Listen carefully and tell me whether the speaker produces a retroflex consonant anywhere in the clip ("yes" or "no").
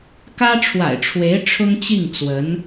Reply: yes